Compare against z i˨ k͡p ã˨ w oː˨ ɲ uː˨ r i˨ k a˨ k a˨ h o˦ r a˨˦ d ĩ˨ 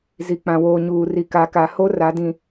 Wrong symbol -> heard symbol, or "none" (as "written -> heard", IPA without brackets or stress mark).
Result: none